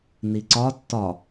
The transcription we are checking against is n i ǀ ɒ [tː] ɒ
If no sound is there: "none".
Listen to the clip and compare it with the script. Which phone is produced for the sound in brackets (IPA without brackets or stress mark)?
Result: tː